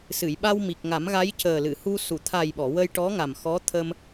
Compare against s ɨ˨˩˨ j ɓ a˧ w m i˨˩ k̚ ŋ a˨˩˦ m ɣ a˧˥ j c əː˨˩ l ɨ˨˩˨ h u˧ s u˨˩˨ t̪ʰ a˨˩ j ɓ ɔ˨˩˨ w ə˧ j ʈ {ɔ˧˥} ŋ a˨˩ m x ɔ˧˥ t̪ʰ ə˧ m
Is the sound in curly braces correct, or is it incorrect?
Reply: correct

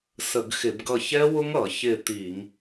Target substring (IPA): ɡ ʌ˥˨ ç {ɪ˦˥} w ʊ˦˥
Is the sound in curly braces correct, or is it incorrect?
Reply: incorrect: ɛ˦˥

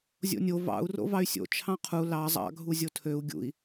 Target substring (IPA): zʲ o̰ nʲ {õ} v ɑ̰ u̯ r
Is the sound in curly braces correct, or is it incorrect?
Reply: incorrect: o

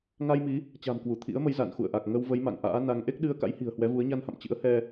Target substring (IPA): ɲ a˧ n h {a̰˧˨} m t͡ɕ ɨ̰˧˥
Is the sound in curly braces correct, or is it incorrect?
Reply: correct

